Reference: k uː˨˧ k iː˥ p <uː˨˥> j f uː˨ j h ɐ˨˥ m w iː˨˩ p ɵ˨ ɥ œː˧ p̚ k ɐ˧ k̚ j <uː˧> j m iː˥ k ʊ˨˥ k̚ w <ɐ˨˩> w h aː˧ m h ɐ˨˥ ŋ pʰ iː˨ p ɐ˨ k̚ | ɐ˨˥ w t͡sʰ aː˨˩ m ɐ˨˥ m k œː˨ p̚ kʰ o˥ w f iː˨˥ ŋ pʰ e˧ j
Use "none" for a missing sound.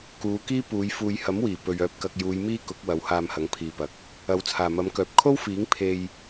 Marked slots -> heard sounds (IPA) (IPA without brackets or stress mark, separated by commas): uː˨˧, uː˨˧, ɐ˨˧